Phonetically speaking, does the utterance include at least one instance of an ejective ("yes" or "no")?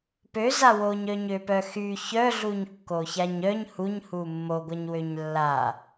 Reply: no